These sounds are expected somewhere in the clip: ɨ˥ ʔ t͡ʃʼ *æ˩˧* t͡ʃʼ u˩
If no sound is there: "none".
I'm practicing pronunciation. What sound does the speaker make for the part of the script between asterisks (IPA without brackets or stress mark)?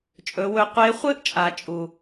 a˩˧